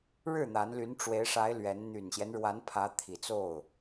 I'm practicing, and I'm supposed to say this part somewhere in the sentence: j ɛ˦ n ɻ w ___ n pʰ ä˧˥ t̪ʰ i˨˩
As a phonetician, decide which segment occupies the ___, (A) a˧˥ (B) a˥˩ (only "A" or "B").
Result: A